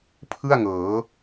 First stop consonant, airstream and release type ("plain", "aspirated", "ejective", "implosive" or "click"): aspirated